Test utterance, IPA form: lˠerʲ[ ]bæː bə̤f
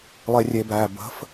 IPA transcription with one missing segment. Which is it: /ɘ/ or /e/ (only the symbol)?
e